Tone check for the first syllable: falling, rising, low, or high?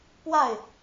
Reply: falling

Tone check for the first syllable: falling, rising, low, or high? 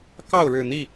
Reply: falling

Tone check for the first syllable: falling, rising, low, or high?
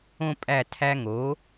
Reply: high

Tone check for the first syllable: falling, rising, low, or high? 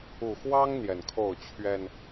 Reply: low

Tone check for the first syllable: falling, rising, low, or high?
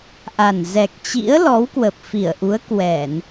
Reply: low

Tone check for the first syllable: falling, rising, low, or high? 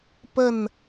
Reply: falling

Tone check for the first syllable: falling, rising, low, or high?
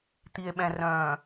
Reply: low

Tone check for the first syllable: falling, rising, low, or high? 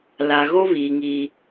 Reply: low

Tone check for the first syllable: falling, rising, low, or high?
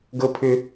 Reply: high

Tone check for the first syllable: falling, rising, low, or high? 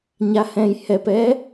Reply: low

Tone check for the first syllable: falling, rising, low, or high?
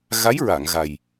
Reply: rising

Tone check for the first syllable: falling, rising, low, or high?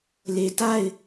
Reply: low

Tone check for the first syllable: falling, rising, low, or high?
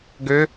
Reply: rising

